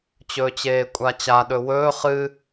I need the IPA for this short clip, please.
t͡ɕɵːt͡ɕeːkʷʼat͡ɕa ɗɵwɵː χɨ

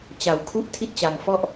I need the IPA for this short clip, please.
t͡ɕa˧wkʰu˦˥ʔ tʰi˦˥t̚t͡ɕa˧ŋ fɔ˥˩ʔ

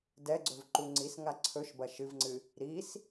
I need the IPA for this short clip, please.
dɛɡ͡ǀɵvǃu ŋ͡ǀisŋa ǀʰɵʃbɐ ʃɨvŋ͡ǀɨ | ɾis

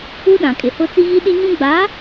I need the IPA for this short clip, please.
u˦ɗã˨kʼɪ˨hʊ˦ t͡si˦ɣi˦ɗi˦ɲũ˦ ɡ͡ba˨˦

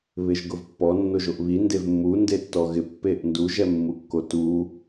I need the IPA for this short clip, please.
βɪʒɡʊvpːɔ nːoʒoʔβi ndevmːu ndetːɔɣɪ pːeʔndu ʒɛmːukːotu

